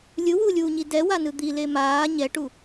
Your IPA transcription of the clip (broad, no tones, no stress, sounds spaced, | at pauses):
lʲ ɯ w uː lʲ uː ɲ i d ɛ w a n ɯ d̪ i l e m aː ɲ ɛ ʈ u